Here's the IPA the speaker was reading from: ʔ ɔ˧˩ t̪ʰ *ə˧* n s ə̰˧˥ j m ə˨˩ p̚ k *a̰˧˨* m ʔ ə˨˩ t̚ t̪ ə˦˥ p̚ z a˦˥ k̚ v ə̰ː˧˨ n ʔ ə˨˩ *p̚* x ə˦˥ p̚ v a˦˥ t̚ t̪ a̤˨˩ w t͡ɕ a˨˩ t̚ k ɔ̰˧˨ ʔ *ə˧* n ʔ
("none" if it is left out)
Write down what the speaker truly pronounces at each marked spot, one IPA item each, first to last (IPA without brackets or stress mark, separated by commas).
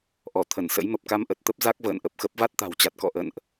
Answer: ə˧˩, a˧, p̚, ə̰˧˨